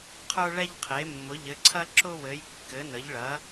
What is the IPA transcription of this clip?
qʰə˞˦ɭɛ˦ʎqʰe˨˦mːʊ˨˦ ʎɘ˨˦ǀʰɐ˦ǁʊ˦wɘ˨˦j kːɘ˨˦nə˨˦ʎɭɐ˨˦

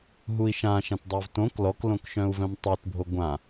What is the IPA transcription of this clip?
ɦui̯ʃã ʃãtdˤœvtõk lɔklõkʃœ̃u̯ vœ̃mtˤotbʱo ɡʷã

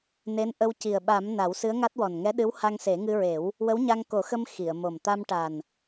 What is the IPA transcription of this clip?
ne˧˥nʔə˧w ci˨˩ə̯ɓa˨˩˦m na˨˩˦wsɨ˧˥ə̯ŋa˦˥t̚ wɔ˨˩nŋɛ˧˥ɗɨ˧˥w ha˧ŋse˨˩˦ŋɨ˧ɹe˨˩˦w | wə˧˥wɲa˧ŋko˨˩˦xə˧m xi˨˩˨ə̯ mo˨˩m t̪a˧mʈa˨˩n

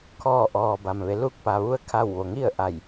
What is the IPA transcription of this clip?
kʰɔː˧˩ʔɔː˩ ba˩mʋe˩˧ lu˧˩k̚pa˩ʋu˧ə̯ kʰa˥˨w ʋo˩ŋi˥˨ə̯ ʔa˧˩j

